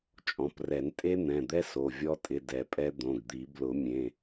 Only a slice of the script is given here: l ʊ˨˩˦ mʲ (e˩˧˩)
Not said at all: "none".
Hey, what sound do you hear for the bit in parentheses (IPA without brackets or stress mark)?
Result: ẽ˩˧˩